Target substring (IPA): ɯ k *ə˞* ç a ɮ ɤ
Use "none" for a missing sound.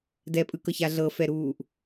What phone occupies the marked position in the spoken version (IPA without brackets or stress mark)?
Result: ɤ